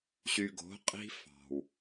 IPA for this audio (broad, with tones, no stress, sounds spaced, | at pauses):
ɕ y˨ ɡ o̤˨˦ qʼ i̤˦ f ɑ̤˨ w